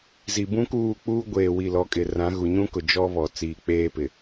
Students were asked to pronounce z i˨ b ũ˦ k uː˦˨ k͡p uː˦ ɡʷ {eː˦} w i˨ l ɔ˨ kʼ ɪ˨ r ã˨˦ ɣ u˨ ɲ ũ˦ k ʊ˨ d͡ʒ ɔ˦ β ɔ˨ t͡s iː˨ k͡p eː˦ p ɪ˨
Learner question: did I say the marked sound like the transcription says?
no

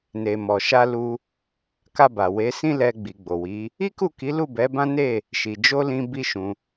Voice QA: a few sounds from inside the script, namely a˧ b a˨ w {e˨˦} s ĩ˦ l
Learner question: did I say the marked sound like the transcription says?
yes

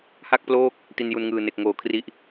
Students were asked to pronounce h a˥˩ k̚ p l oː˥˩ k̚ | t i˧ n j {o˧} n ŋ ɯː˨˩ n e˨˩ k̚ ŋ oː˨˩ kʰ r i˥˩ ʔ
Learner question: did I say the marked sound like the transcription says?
no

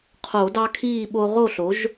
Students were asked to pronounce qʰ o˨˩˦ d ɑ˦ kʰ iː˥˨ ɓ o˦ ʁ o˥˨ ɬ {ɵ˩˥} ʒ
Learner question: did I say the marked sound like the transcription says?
no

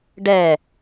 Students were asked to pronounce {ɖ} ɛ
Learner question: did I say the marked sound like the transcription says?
yes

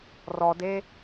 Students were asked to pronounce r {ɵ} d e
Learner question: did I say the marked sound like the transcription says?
no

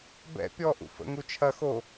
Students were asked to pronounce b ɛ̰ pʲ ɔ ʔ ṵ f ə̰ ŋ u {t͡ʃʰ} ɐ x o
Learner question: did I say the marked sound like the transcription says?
yes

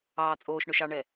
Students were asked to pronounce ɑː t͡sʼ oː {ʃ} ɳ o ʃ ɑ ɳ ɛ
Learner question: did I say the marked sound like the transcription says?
yes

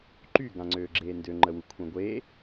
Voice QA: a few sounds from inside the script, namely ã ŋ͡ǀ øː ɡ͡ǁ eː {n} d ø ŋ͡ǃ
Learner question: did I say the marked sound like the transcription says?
yes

